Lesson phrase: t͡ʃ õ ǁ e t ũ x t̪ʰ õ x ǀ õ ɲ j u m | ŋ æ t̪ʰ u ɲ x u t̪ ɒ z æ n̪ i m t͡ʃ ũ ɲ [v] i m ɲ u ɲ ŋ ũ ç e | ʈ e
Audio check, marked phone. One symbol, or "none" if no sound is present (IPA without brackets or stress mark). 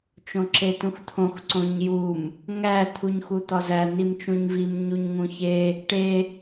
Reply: v